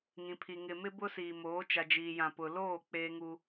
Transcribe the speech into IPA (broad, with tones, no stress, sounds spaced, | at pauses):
ŋ ĩ˨ pʰ i˨ ŋ ɪ˨ m ɪ˦ b ʊ˦ s iː˨ m oː˨˦ t͡ʃ a˨ d͡ʒ iː˨ j ã˨ p ʊ˨ l oː˦˨ k͡p eː˦ ŋ u˦